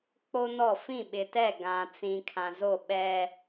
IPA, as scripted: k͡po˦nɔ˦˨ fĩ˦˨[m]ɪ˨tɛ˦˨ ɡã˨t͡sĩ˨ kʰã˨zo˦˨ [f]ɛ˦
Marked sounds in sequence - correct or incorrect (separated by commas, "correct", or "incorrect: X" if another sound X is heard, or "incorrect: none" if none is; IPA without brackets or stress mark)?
incorrect: ɓ, incorrect: ɓ